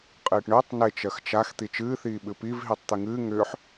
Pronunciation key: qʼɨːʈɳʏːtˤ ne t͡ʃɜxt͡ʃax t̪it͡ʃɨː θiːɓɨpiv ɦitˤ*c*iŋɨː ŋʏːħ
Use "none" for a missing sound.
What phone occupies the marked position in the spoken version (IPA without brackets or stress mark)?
t̪